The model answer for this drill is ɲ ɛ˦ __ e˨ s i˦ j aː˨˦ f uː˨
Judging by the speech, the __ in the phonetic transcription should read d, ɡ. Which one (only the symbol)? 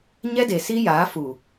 d